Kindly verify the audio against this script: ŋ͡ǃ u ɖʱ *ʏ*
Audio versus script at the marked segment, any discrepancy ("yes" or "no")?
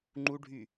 yes